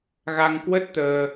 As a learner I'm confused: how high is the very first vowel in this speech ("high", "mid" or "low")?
low